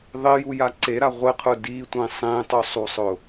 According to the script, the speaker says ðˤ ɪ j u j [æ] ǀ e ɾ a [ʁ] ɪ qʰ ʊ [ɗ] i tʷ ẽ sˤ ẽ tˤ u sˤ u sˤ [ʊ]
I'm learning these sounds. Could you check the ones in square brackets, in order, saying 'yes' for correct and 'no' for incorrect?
no, no, no, yes

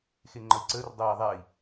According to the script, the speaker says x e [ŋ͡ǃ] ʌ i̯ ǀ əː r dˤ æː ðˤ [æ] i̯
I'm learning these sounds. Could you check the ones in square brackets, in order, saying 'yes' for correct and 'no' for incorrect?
yes, yes

